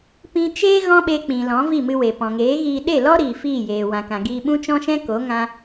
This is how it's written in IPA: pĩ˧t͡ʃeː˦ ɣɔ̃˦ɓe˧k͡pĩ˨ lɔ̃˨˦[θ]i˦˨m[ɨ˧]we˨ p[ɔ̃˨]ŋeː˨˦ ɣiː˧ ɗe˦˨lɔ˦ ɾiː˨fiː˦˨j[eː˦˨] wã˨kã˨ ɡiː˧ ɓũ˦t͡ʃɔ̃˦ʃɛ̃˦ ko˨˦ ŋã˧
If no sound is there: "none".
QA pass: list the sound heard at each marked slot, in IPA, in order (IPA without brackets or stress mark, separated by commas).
v, ɨ˧, ɔ̃˨, eː˨